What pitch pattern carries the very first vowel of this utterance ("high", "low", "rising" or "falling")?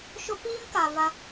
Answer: high